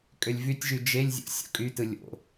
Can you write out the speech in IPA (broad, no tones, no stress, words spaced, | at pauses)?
kʼølʲvytʲʒy d͡ʒelʲzʲo̰ sʲo̰kʼytɯ lʲo̰